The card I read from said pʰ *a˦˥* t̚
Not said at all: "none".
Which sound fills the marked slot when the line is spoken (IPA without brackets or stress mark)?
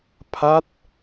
a˦˥